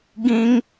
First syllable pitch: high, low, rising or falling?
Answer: high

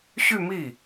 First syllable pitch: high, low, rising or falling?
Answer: falling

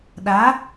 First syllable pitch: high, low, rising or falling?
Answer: rising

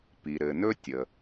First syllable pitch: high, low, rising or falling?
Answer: low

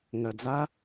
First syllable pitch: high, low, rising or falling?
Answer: low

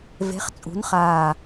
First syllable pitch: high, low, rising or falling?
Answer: rising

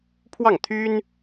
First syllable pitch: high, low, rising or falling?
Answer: falling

